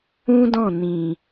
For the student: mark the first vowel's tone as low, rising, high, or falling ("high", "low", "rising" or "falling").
high